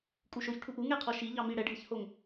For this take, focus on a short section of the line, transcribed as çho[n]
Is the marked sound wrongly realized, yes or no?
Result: yes